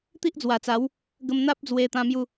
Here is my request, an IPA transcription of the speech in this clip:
t̪ i˦ ʔ d͡z w a˨˩ t͡s a˨˦ w | ɡ ə˧ m n̪ a˦ p̚ d͡z w e˧ t̪ ã˧ m j u˥˧

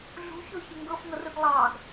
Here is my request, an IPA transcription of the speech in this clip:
ɮ ṳ ç o ç ɪ ŋ ɡ ɤ f ŋ ɤ r ɯ ɡ lˠ ɑ ɡ

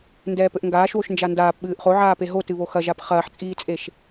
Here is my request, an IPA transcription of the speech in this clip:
n d ɛː p ɘ ʔ ŋ ɡ aː ʃ w o ʃ n d͡ʒ a n d aː p ɓ ɨː ʔ χ o ʕ aː p e ɦ o t ɨ β o x ɐ ʒ a p χ ɐː ħ t͡sʼ iː t͡sʼ e ʃ

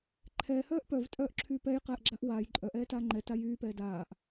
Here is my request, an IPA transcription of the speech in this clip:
ǃʰ ɛː h œː ʔ p œ v tʼ œː ʔ ǁʰ yː p ɛ j q ɛː ʔ ɡ͡ǁ a ʔ w aː j ǃʼ œ ʔ ɛː t aː ŋ͡ǃ ɛ t a j yː p ɛː d aː ʔ

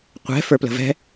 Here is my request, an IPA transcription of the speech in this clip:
qʷ ɛ̤ f ə˞ p l ə̤ v ɛ̤

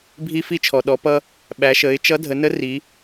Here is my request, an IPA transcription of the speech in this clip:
bʱ i˧ f i˧ t͡ʃʰ ɔ˩ ɗ ɔ˩˧ p ʌ˧ | ɓ æ˩˧ ʃ ə˩˧ ɪ̯ t͡ʃ ʌ˧˥ dʱ ə˩˧ n ə˧˥ r i˩˧

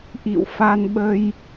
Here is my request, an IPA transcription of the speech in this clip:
ʔ ḭ˧˨ w f a˧ n ɓ ə˧ j

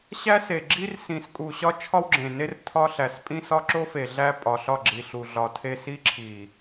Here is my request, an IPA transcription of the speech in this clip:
ɕ æ˦ s e˨ ɡ͡ǁ i˦ r s ĩ˨ s kʼ u˨ ɕ ɒ˦ t͡ʃʰ ɒ˦ w ɡ͡ǁ ẽ˨ n e˦ r tʰ ɒ˦ ɬ æ˨ s pʼ ĩ˦ s ɒ˦ ǁ o˦ f e˨ ɮ æ˦ pʼ ɒ˨ ɬ ɒ˦˨ ɡ͡ǁ i˨ ɬ u˨ ɮ ɒ˨ tʰ e˦˨ s i˦ ǁʰ i˨

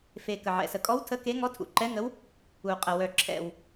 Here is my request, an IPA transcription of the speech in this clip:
f e˨˩ k ə˨˩ ʕ ɛ̰˨˩ s ə˨˩ kʼ ɔ˧˥ w tʰ ə˧˥ k e˧˥ ŋ ɔ˧˥ tʰ ṵ˨˩ ǃ ɛ˧˥ ŋ ə˧˥ w | u˨˩ qʼ ə˨˩ w œ˨˩ ǁʰ ɛ̰˨˩ w

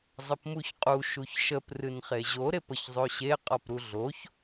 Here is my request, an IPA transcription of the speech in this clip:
zˤ ə p m u ç qʼ u ʃ u ç ʃ ə p r ɨ n χ e ʑ o ɾ e p ə ç zˤ o ɕ e qʼ ɔ p ɾ u ɮ o ç

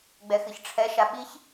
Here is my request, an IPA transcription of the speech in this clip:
ɡ͡b ɛ x ɨ ç ʈ͡ʂʰ ɛ ʃ a ɓ i ç

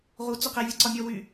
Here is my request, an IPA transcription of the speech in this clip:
ʁ u t͡s y q e vʲ ɯ ǀ ɒ mʲ ɔ w y

